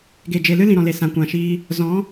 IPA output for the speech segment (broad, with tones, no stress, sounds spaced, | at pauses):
ɡ e˨ d͡ʒ e˨ l ɨ˦ l ĩ˨ ɾ ɔ̃˨ l e˨ s ã˨ kʷ ã˨ ʃ iː˧ | z ɔ̃˨˦